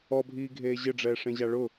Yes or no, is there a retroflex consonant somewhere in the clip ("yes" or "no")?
yes